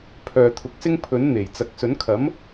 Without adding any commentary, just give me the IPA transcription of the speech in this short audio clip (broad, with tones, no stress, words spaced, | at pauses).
pʰœː˨t̪ʰʊ˨˥k̚sɪ˥ŋ pʰɵ˨˥nn̪e˨˩j t͡sɐ˨k̚sɵ˨˥nkʰɐ˨˥m